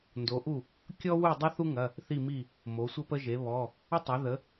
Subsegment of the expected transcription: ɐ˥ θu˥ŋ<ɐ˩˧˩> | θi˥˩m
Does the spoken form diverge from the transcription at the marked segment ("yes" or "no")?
no